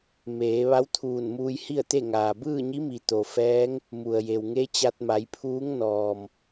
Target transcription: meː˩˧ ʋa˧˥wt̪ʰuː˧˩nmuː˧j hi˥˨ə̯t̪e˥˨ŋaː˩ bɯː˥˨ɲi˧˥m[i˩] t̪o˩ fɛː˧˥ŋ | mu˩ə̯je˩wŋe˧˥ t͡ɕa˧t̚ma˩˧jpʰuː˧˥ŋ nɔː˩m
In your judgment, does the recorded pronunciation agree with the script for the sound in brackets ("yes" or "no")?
yes